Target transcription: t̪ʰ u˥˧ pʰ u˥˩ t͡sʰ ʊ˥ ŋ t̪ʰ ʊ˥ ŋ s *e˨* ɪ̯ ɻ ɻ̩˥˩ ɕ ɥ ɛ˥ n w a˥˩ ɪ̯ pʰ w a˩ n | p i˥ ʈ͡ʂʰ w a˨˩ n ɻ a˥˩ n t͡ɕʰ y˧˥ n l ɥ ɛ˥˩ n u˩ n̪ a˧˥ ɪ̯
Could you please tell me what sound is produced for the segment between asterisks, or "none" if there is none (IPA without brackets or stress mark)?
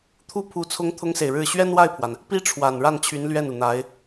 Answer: e˨